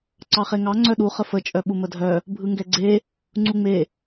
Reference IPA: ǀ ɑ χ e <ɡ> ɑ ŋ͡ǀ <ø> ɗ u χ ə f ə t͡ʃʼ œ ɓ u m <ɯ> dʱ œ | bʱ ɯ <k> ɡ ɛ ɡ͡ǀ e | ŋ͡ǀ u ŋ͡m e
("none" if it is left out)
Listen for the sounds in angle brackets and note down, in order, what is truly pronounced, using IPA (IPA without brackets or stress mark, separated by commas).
ŋ, œ, ə, ŋ